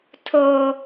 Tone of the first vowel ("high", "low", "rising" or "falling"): high